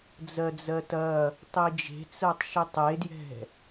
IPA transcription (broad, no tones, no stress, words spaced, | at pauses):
d͡zɜd͡zɜtɐ | tˤid͡ʒe̤t͡sɜtˤ ʃitˤedjɛ̤